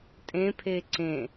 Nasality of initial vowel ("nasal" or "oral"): nasal